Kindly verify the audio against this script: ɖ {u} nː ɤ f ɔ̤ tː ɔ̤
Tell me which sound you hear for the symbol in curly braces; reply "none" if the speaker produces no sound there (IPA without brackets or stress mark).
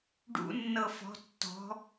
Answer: ṵ